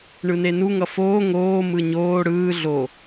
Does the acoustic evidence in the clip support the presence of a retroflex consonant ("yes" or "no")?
yes